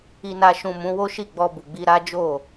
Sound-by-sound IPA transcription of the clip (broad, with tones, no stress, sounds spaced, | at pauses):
i˨ n a˨ ʃ ũ˨ m ũ˨˦ w o˦ ʃ i˦˨ ɡ͡b ɔ˧ b u˨ ɡ͡b i˧ ɾ a˦ d͡ʒ o˦˨